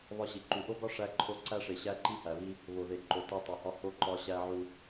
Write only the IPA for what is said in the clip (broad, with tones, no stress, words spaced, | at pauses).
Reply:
βɒ˦ɕi˨ ǃu˨ʔo˦ɡɒ˦ ʂæ˦ǃʰo˦ ǀæ˦ʂe˨ɕæ˦ ǃi˦hæ˨βi˦ | βo˨ðe˨ ǃo˨ te˦ tˤo˨hɒ˦ ho˦ ǃɒ˦ɕæ˦ʕu˦